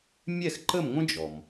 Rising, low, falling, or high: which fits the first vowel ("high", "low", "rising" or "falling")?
falling